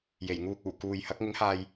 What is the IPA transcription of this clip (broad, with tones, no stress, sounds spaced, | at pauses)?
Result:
j e˨˩ j ŋ uː˧ k̚ uː˨˩ k uː˨ j h ɐ˨˥ k̚ ŋ ɪ˨˥ ŋ h aː˨ j